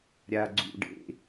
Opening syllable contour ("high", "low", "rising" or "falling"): low